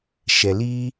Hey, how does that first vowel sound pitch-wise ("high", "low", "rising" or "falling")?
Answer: low